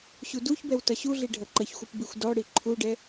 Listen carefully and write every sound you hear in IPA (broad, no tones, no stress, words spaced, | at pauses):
ɕuduçbɛw tʌɕuɮi ɖʱʌǃʌçxʷɯp bixʷdɔɽi ǃʰuɖɛ